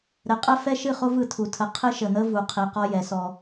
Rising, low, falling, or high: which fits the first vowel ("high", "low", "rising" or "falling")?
low